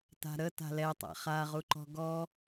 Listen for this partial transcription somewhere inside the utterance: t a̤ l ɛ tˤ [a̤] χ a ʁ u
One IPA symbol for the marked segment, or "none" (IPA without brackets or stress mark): a̰